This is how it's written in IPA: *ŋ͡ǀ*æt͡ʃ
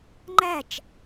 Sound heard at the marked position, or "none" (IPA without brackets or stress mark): ŋ͡ǃ